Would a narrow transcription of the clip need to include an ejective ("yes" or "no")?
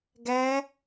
no